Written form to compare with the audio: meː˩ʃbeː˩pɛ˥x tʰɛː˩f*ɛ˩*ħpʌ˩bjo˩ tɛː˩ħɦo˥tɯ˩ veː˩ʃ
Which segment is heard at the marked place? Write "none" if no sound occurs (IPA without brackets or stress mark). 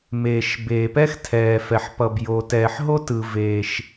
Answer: ɛ˩